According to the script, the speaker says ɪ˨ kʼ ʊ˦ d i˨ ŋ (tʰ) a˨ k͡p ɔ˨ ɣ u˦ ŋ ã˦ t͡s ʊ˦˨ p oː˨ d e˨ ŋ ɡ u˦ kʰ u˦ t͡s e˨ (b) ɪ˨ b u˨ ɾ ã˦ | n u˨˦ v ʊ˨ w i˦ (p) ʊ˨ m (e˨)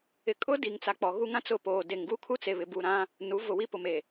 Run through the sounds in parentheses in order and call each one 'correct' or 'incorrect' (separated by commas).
incorrect, incorrect, correct, correct